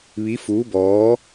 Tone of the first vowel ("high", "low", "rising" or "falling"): rising